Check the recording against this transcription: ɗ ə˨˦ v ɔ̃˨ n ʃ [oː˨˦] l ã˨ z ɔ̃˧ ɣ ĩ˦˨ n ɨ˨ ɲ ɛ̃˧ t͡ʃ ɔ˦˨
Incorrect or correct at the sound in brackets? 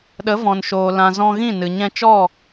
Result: incorrect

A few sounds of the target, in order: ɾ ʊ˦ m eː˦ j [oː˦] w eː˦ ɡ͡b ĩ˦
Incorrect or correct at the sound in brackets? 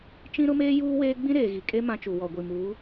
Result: incorrect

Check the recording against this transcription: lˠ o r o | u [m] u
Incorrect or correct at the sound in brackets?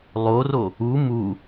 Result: correct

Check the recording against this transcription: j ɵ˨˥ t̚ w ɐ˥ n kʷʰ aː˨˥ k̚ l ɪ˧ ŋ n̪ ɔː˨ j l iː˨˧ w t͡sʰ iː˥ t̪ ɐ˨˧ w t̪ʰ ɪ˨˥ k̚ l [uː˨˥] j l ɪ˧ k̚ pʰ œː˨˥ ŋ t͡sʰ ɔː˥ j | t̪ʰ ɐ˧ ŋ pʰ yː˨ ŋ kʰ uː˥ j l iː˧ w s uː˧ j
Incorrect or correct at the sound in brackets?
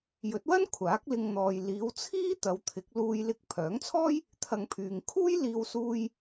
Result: incorrect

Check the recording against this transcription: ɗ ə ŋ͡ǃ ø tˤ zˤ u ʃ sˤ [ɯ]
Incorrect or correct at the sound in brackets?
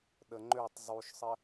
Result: incorrect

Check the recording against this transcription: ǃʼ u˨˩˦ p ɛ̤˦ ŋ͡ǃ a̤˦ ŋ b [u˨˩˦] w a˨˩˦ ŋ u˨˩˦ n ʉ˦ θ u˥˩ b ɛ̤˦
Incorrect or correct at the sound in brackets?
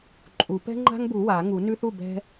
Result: correct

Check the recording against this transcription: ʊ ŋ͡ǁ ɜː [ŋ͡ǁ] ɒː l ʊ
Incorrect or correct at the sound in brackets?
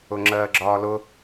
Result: incorrect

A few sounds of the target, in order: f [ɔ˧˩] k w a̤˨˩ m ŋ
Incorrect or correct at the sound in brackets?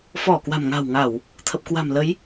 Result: correct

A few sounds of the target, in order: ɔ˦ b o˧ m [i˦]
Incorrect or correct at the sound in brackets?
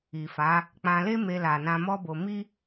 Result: correct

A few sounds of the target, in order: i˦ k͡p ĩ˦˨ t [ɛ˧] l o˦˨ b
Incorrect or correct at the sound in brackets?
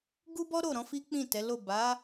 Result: incorrect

